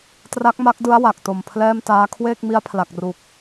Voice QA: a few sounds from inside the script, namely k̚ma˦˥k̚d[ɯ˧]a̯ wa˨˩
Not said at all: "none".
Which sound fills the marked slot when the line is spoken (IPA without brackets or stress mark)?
ɯ˦˥